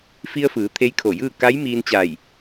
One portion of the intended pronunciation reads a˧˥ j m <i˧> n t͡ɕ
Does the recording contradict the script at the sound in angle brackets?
yes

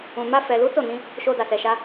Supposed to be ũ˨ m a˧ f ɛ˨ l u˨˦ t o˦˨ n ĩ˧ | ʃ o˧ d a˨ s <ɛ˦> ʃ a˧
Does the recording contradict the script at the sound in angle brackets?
yes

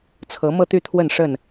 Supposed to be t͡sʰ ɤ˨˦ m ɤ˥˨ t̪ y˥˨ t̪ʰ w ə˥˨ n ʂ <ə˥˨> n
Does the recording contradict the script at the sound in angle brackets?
no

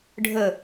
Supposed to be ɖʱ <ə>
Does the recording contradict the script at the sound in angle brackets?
no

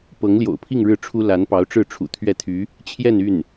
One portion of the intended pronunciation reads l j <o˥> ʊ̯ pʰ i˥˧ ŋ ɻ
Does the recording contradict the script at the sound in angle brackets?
yes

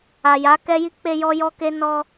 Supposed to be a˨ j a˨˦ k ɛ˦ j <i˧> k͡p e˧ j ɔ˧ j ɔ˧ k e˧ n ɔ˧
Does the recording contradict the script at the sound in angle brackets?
yes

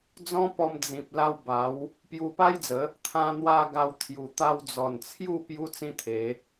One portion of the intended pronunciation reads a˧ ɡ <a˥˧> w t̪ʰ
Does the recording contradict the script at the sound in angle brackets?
yes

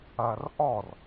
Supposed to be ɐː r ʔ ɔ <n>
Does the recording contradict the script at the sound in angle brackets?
yes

